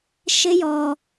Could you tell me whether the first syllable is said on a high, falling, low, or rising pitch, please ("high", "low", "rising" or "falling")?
high